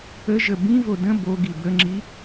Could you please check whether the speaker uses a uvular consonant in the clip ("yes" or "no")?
no